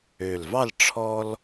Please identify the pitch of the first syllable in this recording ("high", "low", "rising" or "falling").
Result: low